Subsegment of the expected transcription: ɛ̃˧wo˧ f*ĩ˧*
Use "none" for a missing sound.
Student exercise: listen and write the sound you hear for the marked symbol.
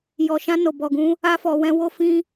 ĩ˧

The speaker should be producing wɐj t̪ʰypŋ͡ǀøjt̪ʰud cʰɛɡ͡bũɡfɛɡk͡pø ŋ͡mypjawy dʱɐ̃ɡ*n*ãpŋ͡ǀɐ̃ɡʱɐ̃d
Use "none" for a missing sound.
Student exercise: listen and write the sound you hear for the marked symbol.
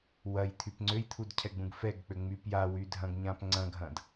ɲ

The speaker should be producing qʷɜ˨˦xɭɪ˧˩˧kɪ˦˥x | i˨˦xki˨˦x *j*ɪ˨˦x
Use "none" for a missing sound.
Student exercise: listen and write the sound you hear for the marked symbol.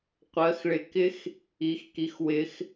w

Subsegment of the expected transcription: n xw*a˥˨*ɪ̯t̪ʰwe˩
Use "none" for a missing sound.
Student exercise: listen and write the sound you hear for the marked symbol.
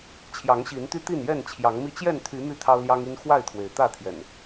a˥˨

